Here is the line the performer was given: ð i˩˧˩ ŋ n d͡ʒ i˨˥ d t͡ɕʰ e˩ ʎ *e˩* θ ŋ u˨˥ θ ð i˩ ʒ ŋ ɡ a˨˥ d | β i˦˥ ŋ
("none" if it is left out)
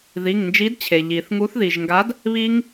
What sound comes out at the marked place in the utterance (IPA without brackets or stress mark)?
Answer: i˩